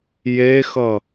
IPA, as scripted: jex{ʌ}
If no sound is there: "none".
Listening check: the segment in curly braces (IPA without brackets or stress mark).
ʌ